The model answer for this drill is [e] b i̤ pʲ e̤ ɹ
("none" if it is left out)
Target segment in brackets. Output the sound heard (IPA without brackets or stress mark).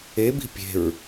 e